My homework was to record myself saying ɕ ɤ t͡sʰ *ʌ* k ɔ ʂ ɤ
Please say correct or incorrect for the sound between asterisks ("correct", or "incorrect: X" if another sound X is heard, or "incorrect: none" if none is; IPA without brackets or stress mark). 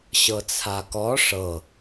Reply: incorrect: a